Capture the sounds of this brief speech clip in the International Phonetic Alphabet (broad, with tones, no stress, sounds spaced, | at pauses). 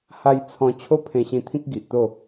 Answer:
h a˧ j t͡sʰ ɔ̃˧ t͡ɕʰ o˦ pʰ ẽ˧ ɕ ĩ˧ t̪ʰ ĩ˦ k̚ ɡ i˨ ʔ t̪ o˥˧